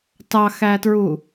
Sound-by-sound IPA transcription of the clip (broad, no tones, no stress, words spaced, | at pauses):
tɑxætɹu